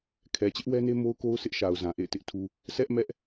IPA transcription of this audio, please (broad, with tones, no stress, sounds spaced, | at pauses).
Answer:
kʰ ɛ˨ t͡ɕ ɪ˦ ʔ w ɛ˦ n e˦ m o˦ ʊ̯ k o˦ ʊ̯ s ɪ˦ ʔ ʃ a˨ ʊ̯ z ã˨ ʔ ḛ˦˨ ɪ̯ t ɪ˦ ʔ tʰ u˦ | s ɛ˦ ʔ m ɛ˦ ʔ